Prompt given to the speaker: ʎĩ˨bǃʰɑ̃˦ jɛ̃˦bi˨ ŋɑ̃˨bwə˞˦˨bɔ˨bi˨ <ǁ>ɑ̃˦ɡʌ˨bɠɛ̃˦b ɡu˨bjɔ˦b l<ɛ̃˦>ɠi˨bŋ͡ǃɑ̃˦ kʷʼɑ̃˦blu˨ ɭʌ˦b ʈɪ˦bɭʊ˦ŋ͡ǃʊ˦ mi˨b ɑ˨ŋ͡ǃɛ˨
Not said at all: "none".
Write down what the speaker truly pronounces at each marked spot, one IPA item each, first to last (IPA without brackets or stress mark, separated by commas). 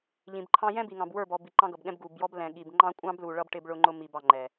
ǃ, ɛ̃˨